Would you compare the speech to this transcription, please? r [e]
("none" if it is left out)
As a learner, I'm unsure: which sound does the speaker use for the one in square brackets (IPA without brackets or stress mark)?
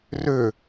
ø